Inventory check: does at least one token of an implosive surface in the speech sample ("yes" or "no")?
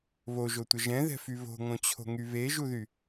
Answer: no